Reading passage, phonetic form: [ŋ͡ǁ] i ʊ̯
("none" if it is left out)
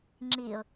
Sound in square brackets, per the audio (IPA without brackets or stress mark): ŋ͡ǁ